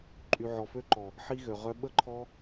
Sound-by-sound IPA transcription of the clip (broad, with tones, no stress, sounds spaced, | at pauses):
ǃʼ y˨ ʕ ɔ˨ f ø˧ ǃ ɔ˨ | ħ i˧ ɣ ø˨ ʁ œ˧ ɓ ə˧ ǃʰ ɔ˧